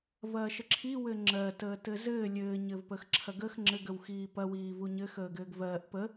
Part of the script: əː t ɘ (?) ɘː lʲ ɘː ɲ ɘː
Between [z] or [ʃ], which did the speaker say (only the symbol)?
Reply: z